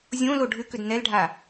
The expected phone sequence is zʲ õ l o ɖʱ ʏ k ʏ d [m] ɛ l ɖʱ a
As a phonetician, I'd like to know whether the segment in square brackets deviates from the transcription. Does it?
yes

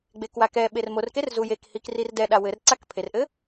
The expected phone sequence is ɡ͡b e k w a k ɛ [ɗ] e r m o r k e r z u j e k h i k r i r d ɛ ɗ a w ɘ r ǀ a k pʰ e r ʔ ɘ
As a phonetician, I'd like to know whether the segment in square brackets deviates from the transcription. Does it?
yes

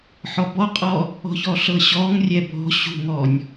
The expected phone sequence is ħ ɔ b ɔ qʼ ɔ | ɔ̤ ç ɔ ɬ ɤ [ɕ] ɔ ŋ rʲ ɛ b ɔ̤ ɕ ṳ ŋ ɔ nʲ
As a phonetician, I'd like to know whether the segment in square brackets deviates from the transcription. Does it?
no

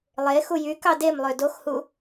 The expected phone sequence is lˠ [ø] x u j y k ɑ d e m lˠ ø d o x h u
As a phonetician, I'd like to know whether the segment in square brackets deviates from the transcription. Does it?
yes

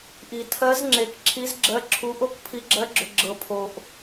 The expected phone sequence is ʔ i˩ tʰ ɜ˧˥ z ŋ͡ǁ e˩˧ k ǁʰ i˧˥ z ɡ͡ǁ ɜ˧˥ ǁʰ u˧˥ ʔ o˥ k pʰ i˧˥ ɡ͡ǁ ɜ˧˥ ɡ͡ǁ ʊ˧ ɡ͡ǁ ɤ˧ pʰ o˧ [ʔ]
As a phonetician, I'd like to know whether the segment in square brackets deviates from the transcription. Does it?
no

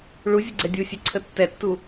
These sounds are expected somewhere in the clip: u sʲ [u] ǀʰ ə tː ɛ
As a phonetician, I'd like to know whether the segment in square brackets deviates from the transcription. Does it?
yes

